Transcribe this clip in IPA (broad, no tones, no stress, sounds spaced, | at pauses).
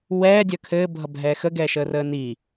w ɛː dʲ œ kʰ ɘː bʱ ʌ bʱ ɛː x ə ɡ ɛː ʃ əː r əː n iː